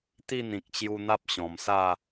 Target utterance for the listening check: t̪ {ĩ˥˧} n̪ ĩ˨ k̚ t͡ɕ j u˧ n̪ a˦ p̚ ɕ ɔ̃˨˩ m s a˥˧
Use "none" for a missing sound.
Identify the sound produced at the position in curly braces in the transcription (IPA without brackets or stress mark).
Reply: i˥˧